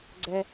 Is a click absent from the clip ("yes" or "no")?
no